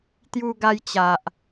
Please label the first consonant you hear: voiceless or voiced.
voiceless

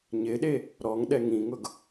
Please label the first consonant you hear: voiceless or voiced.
voiced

